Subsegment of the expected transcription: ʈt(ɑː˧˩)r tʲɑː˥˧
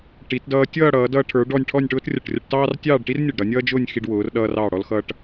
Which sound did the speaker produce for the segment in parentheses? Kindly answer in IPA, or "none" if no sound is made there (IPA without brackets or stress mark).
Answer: ɑː˥